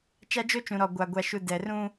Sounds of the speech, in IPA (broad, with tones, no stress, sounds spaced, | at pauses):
t͡ʃ a˦ d͡ʒ o˦ t͡ʃ ũ˨ ɾ ɔ˨ ɡʷ a˨ ɡʷ a˨ ʃ u˨ d ɛ˨ r ũ˦